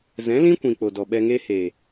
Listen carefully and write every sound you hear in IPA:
z ɛ̃˨˦ l ĩ˦ kʷ ĩ˨ k͡p o˨ d ɔ˨ ɓ ɛ˧ ŋ eː˦ h e˨

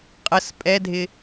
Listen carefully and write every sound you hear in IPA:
qʼ ə s pʼ ɛ dʱ ɪ

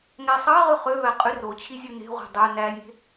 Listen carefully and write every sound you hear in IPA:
ŋ æ sˤ ɑ ʁ ɯ χ ø v æ qʼ y r o t͡ɕʰ i zʲ ɯ n e̤ ʁʷ e̤ dˤ ø n æ nʲ e̤

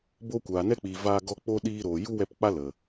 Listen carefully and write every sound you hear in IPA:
b o˧ kʷ aː˨ n ɛ˦ k͡p iː˨ v aː˧ ɡ ɔ˧ k͡p o˦ ɗ iː˧ ɾ oː˨ j u˦ w ɛ˧ p k͡p a˦ l ə˨

